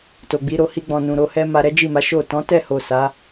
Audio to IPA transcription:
t o˨ ɡ͡b i˨˦ ɾ o˧ h i˧ ɡ͡b ɔ̃˨ n ũ˨ ɾ o˧ h ɛ˦ m a˧ ɾ ɛ˦ d͡ʒ i˦˨ m a˨˦ ʃ o˦˨ t ɔ̃˨˦ t ɛ˦˨ h o˨ s a˨˦

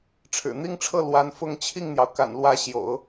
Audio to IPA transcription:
ʈ͡ʂʰ ɻ̩˨˩ n̪ i˥ ŋ ʈ͡ʂʰ ɤ˥˩ l w a˧˥ n f ʊ˥˧ ŋ t͡ɕʰ i˥˩ ŋ n̪ j ɑ˩ ʊ̯ k a̰˨˩ n l w ä˧˥ ɕ j o̰˨˩˦ ʊ̯

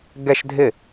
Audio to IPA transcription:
ɡ ɛ ʃ dʱ ɪ

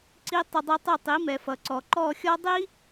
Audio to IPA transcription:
ǀ i˧ tˤ ʏ˧ dˤ i˧ tˤ ʏ˦˨ tˤ i˨˦ m ɛ˨ f ʌ˨ ǀ ɔ˨ ǃ ɔ˦˨ xʲ ɔ˦ dˤ i˦

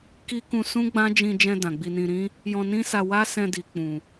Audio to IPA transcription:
k i˦ k ũ˧ s ũ˦ ɡ͡b ã˦ d͡ʒ ĩ˧ d͡ʒ ɛ̃˧ d ã˨ ɡ͡b i˧ n ĩ˧ ɾ ĩ˦ | j ɔ̃˧ n ĩ˦ s a˧ w a˦ s ɛ̃˧ d i˨ k͡p ũ˨

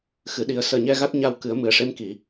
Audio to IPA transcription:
x ɨ˨˩˨ ɗ i˨˩˦ ə̯ s əː˨˩ ɲ ɛ˧ ɣ a˦˥ t̚ ɲ a˧ w k ɨ˨˩˦ ə̯ m ɨ˨˩ ə̯ ʂ e˧˥ m k i˨˩˨

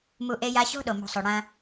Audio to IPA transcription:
m u˧ ʔ e˧ j a˧ ɕ o̤˥ ɗ o˩ m o̤˧ sˤ o˩ ɽ ɐ̃˧

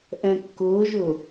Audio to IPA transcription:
ʔ ɛ̃ kː ʊː ʒ ʊ

